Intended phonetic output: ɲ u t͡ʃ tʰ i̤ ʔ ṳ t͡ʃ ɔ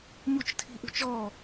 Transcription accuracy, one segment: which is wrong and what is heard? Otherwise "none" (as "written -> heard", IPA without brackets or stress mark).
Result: none